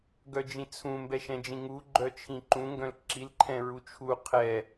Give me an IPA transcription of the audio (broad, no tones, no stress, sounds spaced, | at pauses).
ɡ œ d͡ʒ ĩ t͡sʰ ũ m b ɛ ʃ ɛ̃ d͡ʒ ĩ ŋ u ɡ͡ǃ œ t͡ʃʰ ĩ ǃ ũ ŋ ɡ œ̃ l ǁ i l ǃʰ ɛ̃ ɹ u t͡ʃʰ u qʰ ɛ